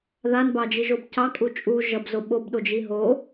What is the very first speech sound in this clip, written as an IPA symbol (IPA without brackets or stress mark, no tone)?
ð